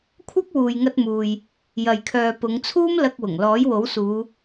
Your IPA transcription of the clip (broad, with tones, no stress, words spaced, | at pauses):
kʷʰɐ˥k̚wuː˨jŋɐ˧t̚ muː˨j | jɐ˨jkʰœː˨pʊ˨˧ŋt͡sʰuː˥m lɐ˧k̚wʊ˨˩ŋ lɔː˨˥jwo˨˥wsuː˨˧